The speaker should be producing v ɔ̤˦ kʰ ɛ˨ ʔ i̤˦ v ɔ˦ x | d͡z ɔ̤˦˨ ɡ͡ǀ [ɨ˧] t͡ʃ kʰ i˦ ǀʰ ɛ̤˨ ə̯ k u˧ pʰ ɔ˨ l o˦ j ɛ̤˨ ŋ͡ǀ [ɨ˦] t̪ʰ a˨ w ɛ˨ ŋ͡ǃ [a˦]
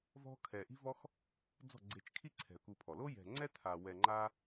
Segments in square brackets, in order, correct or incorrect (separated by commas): incorrect, incorrect, correct